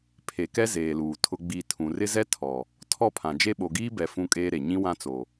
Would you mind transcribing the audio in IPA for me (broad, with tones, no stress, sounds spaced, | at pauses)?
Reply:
pʰ e˨ k ɛ˦ z eː˨ l uː˨ tʰ ʊ˦ ɡ͡b i˦˨ tʰ ũ˨ r ɪ˦ z ɛ˦ tʰ ɔ˨ | tʰ ɔ˦˨ pʰ ã˨ d͡ʒ e˦ ɓ o˨ ɡ iː˦ b ɛ˨ f ũ˦ kʼ eː˦ ɾ e˨ ɲ ĩ˦ w ã˦ t͡s o˨